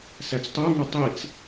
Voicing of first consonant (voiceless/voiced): voiceless